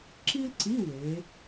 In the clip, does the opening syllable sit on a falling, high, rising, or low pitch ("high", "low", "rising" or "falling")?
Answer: high